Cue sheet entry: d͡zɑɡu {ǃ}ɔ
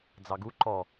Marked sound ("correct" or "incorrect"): correct